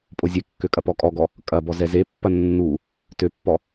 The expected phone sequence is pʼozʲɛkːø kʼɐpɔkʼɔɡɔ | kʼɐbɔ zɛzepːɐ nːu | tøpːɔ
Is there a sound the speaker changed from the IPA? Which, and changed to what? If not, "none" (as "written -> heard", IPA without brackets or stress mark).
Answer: none